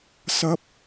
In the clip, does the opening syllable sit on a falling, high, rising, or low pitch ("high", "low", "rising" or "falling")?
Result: high